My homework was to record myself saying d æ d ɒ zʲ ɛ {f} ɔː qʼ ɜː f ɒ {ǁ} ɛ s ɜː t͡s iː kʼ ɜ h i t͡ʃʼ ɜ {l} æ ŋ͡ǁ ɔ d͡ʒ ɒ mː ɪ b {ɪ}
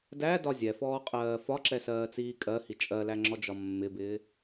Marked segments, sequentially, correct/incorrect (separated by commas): correct, correct, correct, incorrect